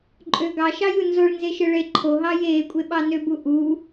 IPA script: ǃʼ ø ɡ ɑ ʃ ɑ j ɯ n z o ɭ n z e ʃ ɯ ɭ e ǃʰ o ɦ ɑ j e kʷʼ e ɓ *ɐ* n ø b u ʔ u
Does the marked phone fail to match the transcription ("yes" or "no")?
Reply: yes